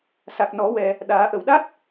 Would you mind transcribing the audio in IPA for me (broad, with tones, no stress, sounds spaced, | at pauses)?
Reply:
s a˨˩ k̚ n ɔ˨˩˦ w ɛ˨˩ | ɗ aː˨˩˦ ʔ ə˨˩˨ w ɗ a˦˥ t̚